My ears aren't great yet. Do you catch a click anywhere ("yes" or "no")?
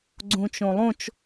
yes